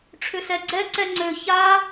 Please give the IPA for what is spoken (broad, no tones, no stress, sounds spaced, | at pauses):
ʈ͡ʂʰ ʏ s ɛ ɡ͡ǀ ɛ ǀ ɛ ŋ͡ǀ ø ç a